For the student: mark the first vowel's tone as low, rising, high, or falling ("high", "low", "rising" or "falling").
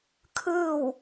falling